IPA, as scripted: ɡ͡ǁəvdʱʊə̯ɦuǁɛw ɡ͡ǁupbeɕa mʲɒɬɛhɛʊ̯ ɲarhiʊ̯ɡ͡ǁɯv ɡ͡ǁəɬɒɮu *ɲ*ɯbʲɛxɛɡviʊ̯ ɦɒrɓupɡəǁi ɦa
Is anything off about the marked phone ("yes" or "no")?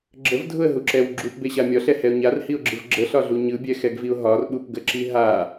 no